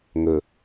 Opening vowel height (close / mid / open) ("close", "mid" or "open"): mid